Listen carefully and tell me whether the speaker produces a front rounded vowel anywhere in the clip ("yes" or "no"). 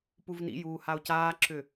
yes